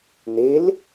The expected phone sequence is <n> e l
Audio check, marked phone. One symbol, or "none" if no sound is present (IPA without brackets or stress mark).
n